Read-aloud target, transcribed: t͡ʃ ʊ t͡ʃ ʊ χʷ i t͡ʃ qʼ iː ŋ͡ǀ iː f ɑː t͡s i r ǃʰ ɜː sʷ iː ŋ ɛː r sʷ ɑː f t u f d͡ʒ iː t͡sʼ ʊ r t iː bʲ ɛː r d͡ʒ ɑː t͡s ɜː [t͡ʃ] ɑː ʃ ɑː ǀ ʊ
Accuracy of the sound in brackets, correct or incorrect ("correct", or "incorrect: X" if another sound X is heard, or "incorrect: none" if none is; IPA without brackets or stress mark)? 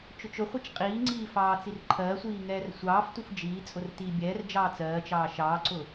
correct